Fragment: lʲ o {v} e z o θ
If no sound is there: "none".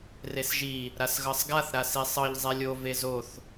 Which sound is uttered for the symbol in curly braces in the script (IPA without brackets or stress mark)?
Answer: v